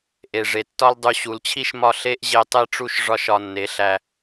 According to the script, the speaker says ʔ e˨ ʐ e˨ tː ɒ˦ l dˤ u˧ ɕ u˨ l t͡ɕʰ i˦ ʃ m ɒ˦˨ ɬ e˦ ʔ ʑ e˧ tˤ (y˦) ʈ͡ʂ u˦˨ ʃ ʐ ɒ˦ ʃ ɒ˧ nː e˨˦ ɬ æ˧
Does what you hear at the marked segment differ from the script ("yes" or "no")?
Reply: yes